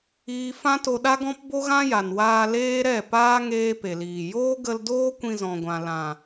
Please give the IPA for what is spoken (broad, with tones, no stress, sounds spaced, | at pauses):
iː˦ f ã˦ t o˧ ɗ a˦ ɡ ɔ̃˦ p b o˦ ɣ ã˦ j a˨ n w aː˧ l eː˦ ɾ ɛ˦˨ p aː˦ ŋ eː˦ p e˨ l iː˨ j oː˦ ɡ ə˧ l d oː˦ kʷ ĩ˧ z ɔ̃˨ ɡʷ ã˨ l ã˨